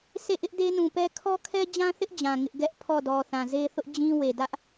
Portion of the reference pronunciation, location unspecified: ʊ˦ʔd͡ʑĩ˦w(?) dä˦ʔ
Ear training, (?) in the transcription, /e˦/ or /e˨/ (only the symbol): e˨